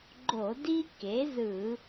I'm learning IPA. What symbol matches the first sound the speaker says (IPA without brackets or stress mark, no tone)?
ɡ͡ǃ